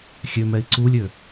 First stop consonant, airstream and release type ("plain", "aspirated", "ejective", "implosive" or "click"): click